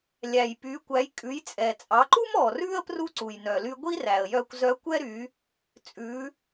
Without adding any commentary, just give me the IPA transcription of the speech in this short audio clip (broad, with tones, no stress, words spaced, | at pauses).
lʲæ˩j py˩˧kʷæ˩˧j kʼʉ˩˧jt͡sʼɛ˩t͡sʼɑ˩˧ǃu˥m ɔː˩rʉː˥ə̯ pru˥ǀu˩j nœ˩ly˧ɡʷi˥ræ˩ə̯ jœ˧kʷzœ˧˥kʷɛ˥ ɾy˩˧ | t͡sʼʉ˩˧